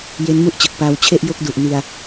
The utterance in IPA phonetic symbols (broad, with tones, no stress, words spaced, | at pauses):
je˦˥nmu˥˩ʔt͡ɕɯ˨˩k̚paː˧w t͡ɕʰe˥˩ʔjo˥˩k̚du˨˩ʔ ni˧a̯